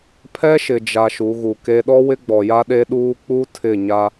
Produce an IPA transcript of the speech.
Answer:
pʰ ɛ˦ ʃ ɪ˨ d͡ʒ a˨ ʃ u˨˦ ɣ u˨ k e˦ ɗ ɔ˦ w ɪ˦ ɡ͡b ɔ˨ j a˦ ɗ e˦ ɗ uː˦ k͡p u˦ tʰ ɪ˦˨ ɲ a˦

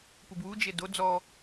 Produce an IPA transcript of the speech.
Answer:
p u b w u d͡ʒ e d o d͡z ɔ

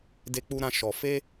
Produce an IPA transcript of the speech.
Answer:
d e˧ k͡p u˧ ɾ ã˧ ʃ ɔ˧ f e˦

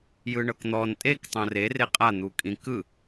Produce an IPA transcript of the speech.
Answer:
j ɯ ɳ ɤ k n̪ ɔ n tʼ e k tˤ õ r e r e qʼ a n̪ u kʼ ĩ k ɯ

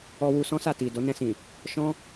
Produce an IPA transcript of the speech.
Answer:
ɔ˧ w u˧ s ɔ̃˦ s a˦˨ t i˨ d o˨˦ n ɛ̃˧ s ĩ˨ | ʃ ɔ̃˦

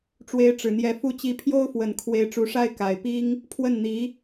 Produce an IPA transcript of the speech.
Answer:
ʈ͡ʂ w e˧˥ ɪ̯ ʈ͡ʂ ɻ̩˨˩ n̪ j ɛ˧˥ f u˥˩ t͡ɕ i˧˥ pʰ j o˥ ʊ̯ f w ə˨˩ n kʰ w e˧˥ ɪ̯ ʈ͡ʂ u˧˥ ʂ a˥ ɪ̯ k a˨˩ ɪ̯ p i˥ ŋ | pʰ w ə˥˩ n n̪ i˧˥

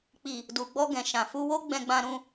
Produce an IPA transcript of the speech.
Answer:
k͡p i˨ | d u˨ ɡ͡b ɔ˧ ɡ ɛ̃˨ ʃ ã˨ f u˧ w o˦ ɡ͡b ɛ̃˧ ɡ͡b ã˧ ɾ ũ˧

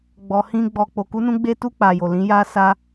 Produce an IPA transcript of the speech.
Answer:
ɡ͡b ɔ˧ h ĩ˦ ɡ͡b ɔ˧ k͡p o˧ k u˦ n ũ˦ ɡ͡b e˦ t u˦˨ k͡p a˨ j o˨ l ĩ˨˦ j a˧ s a˧

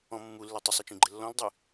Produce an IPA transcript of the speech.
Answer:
ɔ̃ mː u lː ɛ tˤ ɘ sˤ e t͡ʃ ĩ ɡ͡ǃ ɘ lː ɔ̃ l dˤ ɨ

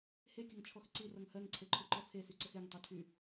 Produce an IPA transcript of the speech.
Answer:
h e kʲ ʌ ŋ t͡ʃʰ ɔ x ǀ i r ʌ ŋ h ɜ ŋ ǀʰ e ǃʰ u ǃ ɔ t͡sʰ e s y ǀ ə x e ŋ tˤ i tʰ y

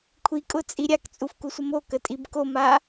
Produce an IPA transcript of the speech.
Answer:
kʷʰ i kʼ ʊ t͡sʼ i ɾʲ a k t͡sʼ u f k u sʷ ə m o k ə tʼ i b k o m a

